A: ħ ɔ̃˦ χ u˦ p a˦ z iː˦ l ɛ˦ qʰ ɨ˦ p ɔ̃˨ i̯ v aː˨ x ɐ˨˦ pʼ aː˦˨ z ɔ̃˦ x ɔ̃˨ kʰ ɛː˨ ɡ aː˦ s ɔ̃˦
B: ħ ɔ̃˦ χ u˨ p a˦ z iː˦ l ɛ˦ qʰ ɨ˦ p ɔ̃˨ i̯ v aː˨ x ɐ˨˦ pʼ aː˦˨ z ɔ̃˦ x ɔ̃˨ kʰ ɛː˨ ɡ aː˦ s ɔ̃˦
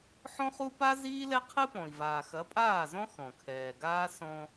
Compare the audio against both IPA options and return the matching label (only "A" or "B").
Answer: A